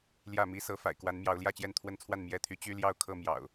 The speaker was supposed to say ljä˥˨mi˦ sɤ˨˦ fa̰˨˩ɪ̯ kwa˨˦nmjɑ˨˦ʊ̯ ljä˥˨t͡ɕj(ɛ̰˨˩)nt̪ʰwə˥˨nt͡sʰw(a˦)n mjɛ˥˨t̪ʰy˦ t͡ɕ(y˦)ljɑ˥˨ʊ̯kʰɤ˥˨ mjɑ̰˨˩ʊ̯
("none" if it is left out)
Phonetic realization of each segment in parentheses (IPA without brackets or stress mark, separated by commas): ɛ˥˨, a˥˨, y˦